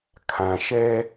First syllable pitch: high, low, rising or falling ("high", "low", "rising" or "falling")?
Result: low